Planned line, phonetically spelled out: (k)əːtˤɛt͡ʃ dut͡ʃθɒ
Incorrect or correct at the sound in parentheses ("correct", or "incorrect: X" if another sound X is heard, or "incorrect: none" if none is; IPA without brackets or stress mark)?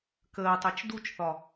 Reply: correct